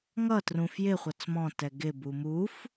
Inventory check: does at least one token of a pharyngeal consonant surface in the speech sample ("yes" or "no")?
no